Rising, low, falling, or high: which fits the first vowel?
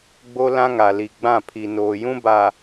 high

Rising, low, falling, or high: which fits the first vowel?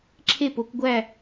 falling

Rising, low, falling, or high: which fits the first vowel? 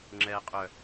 low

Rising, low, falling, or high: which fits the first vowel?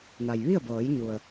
low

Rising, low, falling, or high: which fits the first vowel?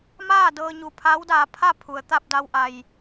falling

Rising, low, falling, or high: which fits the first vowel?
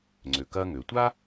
low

